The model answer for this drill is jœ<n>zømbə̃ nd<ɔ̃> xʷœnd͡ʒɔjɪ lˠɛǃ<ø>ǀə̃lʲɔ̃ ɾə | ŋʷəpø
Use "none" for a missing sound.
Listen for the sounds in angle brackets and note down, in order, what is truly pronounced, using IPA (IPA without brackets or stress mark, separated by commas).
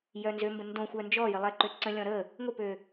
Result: n, õ, ø